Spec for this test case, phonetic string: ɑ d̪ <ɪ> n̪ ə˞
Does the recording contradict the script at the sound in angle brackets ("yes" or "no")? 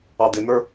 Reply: no